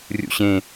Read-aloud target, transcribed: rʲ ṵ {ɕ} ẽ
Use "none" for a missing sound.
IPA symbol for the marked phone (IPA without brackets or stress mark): ɕ